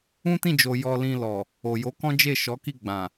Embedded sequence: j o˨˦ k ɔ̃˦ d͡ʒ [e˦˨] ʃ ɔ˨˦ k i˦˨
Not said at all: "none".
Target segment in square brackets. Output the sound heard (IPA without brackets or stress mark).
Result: e˦˨